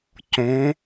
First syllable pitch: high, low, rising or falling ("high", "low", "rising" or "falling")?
rising